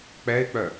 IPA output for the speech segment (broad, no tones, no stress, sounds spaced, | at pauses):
k͡p ɛ ɪ̯ k͡p œ